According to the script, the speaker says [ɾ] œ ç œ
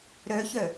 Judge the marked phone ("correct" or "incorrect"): correct